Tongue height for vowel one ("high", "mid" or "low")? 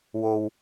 mid